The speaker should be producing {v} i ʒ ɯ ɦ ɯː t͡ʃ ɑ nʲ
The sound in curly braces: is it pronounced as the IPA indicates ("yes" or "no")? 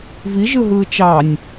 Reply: yes